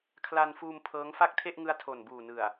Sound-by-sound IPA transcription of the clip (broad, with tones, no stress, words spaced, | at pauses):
kʰla˧nfuː˧m pʰɤː˦˥ŋ fa˥˩k̚tʰe˥˩ʔŋɯ˦˥a̯ tʰo˨˩nbuː˨˩nɯ˨˩a̯